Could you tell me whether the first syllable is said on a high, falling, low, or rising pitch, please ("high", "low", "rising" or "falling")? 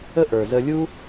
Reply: high